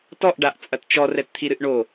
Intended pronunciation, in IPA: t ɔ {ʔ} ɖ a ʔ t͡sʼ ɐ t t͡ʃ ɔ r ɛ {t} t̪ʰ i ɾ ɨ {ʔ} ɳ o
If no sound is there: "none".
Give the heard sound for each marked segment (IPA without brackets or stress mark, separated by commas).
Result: ʔ, t, ʔ